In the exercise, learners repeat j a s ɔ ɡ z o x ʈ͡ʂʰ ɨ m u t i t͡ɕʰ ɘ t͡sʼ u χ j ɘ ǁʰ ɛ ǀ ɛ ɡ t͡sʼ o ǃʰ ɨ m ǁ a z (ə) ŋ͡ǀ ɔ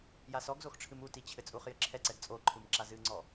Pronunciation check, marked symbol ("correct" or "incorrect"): incorrect